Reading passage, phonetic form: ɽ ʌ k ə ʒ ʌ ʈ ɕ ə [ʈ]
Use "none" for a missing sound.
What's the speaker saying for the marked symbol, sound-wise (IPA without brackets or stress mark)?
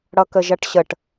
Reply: ʈ